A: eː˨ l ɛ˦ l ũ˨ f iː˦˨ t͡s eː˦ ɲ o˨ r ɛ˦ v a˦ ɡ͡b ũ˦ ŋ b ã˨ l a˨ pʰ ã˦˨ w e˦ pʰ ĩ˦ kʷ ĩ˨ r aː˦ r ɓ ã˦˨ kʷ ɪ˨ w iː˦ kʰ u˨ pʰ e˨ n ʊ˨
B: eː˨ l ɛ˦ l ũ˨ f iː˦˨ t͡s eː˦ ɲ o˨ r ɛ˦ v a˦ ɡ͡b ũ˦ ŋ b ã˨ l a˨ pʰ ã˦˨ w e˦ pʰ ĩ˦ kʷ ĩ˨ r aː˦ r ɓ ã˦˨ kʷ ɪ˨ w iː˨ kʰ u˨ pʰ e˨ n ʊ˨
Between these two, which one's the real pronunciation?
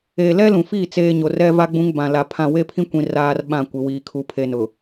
B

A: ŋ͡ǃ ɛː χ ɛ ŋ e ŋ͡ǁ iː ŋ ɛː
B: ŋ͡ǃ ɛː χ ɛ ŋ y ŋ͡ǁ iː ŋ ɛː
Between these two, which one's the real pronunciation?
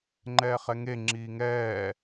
A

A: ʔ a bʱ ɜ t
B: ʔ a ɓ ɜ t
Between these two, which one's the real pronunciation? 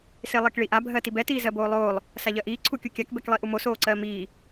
A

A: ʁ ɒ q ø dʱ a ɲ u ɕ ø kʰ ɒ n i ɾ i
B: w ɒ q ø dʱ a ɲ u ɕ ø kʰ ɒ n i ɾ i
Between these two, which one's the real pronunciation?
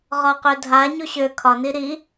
A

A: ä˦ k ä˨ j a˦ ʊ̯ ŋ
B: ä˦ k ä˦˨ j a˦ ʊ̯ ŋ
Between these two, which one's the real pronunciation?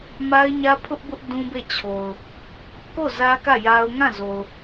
B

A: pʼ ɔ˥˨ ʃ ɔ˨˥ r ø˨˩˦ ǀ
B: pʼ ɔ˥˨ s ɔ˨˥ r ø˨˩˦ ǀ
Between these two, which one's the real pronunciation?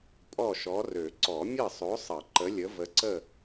A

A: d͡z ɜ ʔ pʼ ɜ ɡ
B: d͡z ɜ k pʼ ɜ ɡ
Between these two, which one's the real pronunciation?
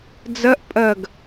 A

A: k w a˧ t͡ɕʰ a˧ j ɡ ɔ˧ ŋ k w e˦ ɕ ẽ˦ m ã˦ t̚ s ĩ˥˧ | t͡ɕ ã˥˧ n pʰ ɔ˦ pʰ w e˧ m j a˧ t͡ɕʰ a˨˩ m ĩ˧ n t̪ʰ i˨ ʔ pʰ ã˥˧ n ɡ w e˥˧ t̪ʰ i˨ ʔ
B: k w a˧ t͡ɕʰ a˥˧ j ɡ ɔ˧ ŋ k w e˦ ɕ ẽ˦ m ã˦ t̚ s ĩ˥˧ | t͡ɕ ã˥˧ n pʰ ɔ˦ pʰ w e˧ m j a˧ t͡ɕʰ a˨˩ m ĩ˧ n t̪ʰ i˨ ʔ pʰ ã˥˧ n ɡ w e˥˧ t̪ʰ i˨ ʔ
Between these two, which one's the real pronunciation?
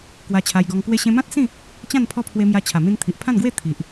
A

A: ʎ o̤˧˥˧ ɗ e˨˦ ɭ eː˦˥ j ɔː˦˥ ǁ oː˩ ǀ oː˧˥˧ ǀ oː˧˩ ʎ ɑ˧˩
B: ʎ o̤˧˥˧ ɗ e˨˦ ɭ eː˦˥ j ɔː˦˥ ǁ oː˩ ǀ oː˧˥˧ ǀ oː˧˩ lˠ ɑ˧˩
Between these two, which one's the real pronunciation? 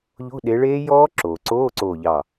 A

